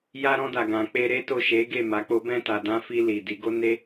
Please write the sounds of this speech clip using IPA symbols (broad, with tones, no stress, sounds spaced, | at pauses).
j a˧ ɾ ɔ̃˧ d a˨ ɡ ã˨ k͡p e˧ ɾ e˦ t o˦˨ ʃ e˨˦ ɡ e˦˨ m a˨˦ k͡p o˦ b ɛ̃˦˨ t a˨ d ã˧ f i˧ l i˨ d i˨˦ ɡ o˦ n e˦